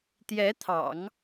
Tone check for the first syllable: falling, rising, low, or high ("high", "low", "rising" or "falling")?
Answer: rising